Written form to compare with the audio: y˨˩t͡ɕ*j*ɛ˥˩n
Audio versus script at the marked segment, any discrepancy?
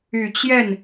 no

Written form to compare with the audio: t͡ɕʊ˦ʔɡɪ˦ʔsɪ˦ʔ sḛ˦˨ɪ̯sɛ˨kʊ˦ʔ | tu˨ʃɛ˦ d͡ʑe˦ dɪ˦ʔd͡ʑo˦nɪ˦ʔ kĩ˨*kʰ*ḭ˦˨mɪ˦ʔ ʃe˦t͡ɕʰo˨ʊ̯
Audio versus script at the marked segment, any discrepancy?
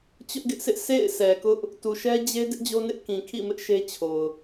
no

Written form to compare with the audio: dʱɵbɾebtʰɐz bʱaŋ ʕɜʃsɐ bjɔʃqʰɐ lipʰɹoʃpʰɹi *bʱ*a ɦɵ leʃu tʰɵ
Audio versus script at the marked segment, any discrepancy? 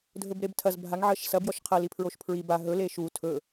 yes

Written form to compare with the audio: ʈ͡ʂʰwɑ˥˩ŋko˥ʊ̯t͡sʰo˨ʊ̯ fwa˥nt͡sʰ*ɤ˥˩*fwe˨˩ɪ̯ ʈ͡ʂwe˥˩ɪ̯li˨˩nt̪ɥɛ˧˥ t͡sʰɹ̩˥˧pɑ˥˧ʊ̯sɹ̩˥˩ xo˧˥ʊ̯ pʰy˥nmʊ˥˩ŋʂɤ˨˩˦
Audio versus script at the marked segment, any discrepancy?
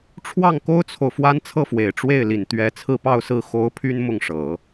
no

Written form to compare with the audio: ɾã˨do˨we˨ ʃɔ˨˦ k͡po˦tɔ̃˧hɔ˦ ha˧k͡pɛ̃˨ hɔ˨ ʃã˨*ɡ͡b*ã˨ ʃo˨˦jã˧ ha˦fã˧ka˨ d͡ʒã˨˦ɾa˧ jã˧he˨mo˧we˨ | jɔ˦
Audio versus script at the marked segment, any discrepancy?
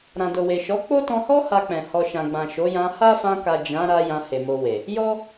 no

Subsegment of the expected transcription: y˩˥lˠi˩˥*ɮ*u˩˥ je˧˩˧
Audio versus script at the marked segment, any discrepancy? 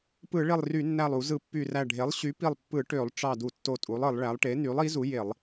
yes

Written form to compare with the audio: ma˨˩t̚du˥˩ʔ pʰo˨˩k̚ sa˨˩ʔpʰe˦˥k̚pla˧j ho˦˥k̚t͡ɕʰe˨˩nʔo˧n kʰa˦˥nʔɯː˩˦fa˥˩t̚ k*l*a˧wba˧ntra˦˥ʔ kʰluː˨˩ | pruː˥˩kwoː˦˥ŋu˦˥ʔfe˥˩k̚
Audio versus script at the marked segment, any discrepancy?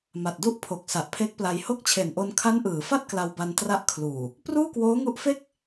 no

